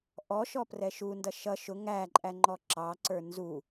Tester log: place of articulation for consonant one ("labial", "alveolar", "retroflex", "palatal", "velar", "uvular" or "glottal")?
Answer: glottal